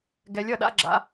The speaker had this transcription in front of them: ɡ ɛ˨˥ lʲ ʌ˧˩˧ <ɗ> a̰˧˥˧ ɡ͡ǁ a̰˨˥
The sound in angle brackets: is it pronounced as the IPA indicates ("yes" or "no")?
yes